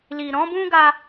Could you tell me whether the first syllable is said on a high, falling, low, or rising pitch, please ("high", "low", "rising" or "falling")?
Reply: low